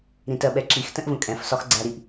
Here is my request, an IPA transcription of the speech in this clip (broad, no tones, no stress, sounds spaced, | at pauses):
ɾ ĩ t ɜ ɓ ɛ ǁ i x t ə̃ ʔ v ə̃ kʼ ɛ̃ f s ɒ x ɡ͡ǀ æ ɾ i ʔ